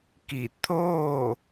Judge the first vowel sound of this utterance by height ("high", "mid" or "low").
high